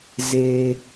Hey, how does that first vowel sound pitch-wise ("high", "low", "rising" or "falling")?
low